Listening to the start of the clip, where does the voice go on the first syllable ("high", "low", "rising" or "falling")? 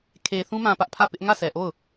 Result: low